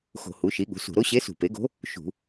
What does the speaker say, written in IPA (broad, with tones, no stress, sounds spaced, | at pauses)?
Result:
x o̤˧˩˧ h u˩˥ ʃ i˩˥ ɠ ṳ˩˥ s ṳ˧˩˧ ɾ o˧˥ ɕ e˧˥ s ṳ˧˩˧ p e˩˥ ɡ o̤˧˥ | ʃ ṳ˧˩˧